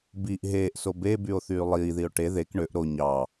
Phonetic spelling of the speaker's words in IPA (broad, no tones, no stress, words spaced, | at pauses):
biʔ ɦeːʔso bebyo̯θyː lˠiːðio̯ ʈe ðek ɳøʔ ɾo ɲɑ